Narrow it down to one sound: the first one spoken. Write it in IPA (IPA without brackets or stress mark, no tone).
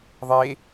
ðˤ